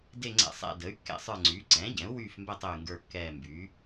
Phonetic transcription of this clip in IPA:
d e˦˨ ŋ͡ǀ ɛ̰˦˨ sˤ ɛ̰˦˨ d ə˩˥ y̯ kː ɛ̰˦˨ sˤ ə˞˦˨ ŋ͡ǀ yː˩˥ ǀ ɛ̃ː˩˥ ɟ ɛ̃˩˥ u̯ w yː˦˨ f m b ɛ˦˨ tˤ ø˦˨ y̯ ŋ ɡ ə˞˦˨ kː ɛː˦˨ m b yː˩˥

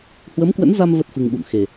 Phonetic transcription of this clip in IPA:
h w ə˨˦ m k w ə̰˧˥ n z a˧ m v ə˦˥ t̚ f ɨ˧ ŋ ɓ ṵ˧˨ m x e˨˩

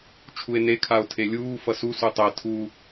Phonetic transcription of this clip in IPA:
t͡ʃʰ u e̯ n e kʰ a o̯ tʰ e lʲ uː f ʌ s u s u tˤ ɛ tʰ u

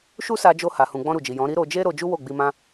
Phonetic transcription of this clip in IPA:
ʃ u˦ s a˧ d͡ʒ o˧ h a˨ h ũ˨ ɡ͡b ɔ̃˧ ɾ u˨ d͡ʒ i˨ j ɔ̃˨˦ ɾ i˦ ɾ o˧ d͡ʒ e˦ ɾ o˧ d͡ʒ u˦ w o˦˨ ɡ͡b i˧ m ã˦

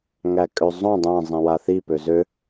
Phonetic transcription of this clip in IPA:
ŋ æ kʼ ø zˤ õ dˤ æ̃ zˤ ĩ w a θ i p ø z ø

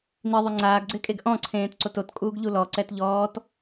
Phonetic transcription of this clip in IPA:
n i ðˤ ʊ ŋ͡ǀ aː ɡ ɡ͡ǀ ɪː kʼ e ɡ ʔ ɔ̃ ǀʰ ẽː t ǀ o t o t kʼ uː ɡ ʎ u l ɔ ǀ ɛ t ʎ ɔː t

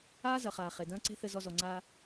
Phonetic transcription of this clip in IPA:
aː˦ z ɐ˨ χ aː˨ χ e˨ d ɐ̃ː˦ ǀ e̤˦ θ ɘ˧ z ɔ˧ z ɔ˨ ŋ͡ǀ aː˧

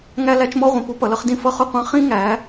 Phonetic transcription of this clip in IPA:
ŋ æ˦ l æ˦ t͡ʃ m ɔ˦ ʁʷ ĩ˩˧ p u˦ p ʌ˩˧ l ʌ˦ χ d ĩ˦ f ʌ˦ χ ʊ˦ qʷ ɑ̃˦ χ ĩ˦ ŋ æ˩˧

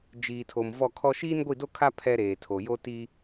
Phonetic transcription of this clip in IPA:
d͡ʒ iː˨ tʰ o˨ m v ɔ˦˨ kʰ ɔ˦ ʃ iː˦ n ɡʷ i˦˨ d o˦ kʰ a˦ pʰ ɛ˦ ɾ eː˨ tʰ o˨ j o˦ t i˦

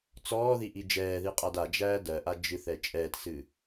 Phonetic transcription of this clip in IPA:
t͡s ɔː ð i ʔ i d͡ʒ ɛː ð i qʼ a d a d͡ʒ æː d ɜ ʔ a d͡ʒ ɨ θ ɛ t͡ʃʼ ɛː t s ɨ

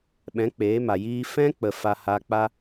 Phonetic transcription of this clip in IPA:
ɓ ɛ̃˨˦ k͡p eː˨˦ m a˨ j iː˧ f ɛ̃˦ k͡p ə˨ f a˧ h aː˧ k͡p a˦

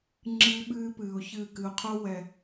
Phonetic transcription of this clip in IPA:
ŋ͡ǁ ɨː˦ ɓ ɨː˦ p ɨː˨ ʊ̯ ç ɨː˦˨ k ɨ˨ ʊ̯ qʰ o˦ w ɛ˨

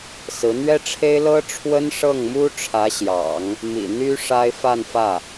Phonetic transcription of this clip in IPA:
s ɹ̩˧˥ n̪ ɥ ɛ˥ ʈ͡ʂʰ e˥ ɪ̯ l ɤ˥ ʈ͡ʂʰ w ə˥ n ʂ ɤ˥˩ ŋ m u˥ ʈ͡ʂʰ ä˧˥ ɕ j ɑ̰˨˩˦ ŋ | m ḭ˨˩ n̪ y˥ ʂ a˥ ɪ̯ f a˥˧ n f ä˥˩

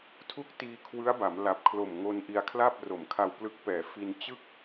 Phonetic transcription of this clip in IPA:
tʰ u˥˩ k̚ t iː˧ kʰ w ɯ˦˥ a̯ b a˩˦ m l a˨˩ p̚ kʰ l o˨˩ m ŋ o˧ n ʔ i˧ a̯ kʰ l a˥˩ p̚ r o˨˩ m kʰ a˧ w p l ɯ˦˥ k̚ p ɛː˨˩ f i˧ n t͡ɕ ɯ˥˩ k̚

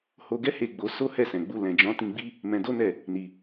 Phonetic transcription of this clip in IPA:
h o˧ ɡ ɛ˦ h e˦˨ ɡ͡b o˧ s o˦ h ɛ˦˨ s ɛ̃˨ ɡ͡b u˧ l ɛ̃˨ d͡ʒ ɔ̃˨˦ t ĩ˧ ɡ͡b i˦ | m ɛ̃˧ d o˦ n ɛ˦˨ | n i˨

